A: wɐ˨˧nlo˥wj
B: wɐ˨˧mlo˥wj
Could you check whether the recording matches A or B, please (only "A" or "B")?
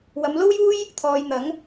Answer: B